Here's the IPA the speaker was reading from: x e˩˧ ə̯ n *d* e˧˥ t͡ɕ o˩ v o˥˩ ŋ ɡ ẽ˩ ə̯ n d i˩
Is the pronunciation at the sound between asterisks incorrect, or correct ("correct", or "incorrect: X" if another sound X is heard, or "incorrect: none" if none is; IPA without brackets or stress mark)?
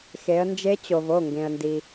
incorrect: d͡ʒ